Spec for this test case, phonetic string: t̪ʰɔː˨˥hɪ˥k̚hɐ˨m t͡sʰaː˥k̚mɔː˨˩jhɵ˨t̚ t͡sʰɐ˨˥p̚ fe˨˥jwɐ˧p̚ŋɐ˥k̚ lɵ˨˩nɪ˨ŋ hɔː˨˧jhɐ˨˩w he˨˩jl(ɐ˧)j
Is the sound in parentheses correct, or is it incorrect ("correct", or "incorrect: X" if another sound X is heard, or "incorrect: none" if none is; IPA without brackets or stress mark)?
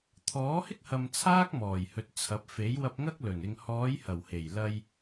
correct